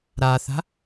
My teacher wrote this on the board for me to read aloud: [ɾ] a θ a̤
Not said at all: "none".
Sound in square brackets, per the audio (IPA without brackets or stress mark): ɾ